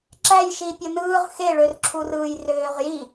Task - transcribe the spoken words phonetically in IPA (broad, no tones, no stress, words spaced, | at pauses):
ǁæjʃi pʲonɯːʁ xeɭørǁʰur ɯːjrøːʁji